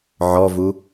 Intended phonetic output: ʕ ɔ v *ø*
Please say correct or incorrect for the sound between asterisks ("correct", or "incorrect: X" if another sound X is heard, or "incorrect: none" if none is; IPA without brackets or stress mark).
incorrect: u